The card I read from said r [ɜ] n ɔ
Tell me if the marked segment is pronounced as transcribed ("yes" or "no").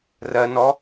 yes